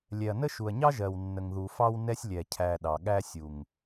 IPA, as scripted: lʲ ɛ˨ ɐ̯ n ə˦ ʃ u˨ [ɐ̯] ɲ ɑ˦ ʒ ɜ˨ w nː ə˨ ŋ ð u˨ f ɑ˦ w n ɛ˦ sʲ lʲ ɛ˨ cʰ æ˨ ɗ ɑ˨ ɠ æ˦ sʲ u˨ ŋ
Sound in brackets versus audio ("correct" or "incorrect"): correct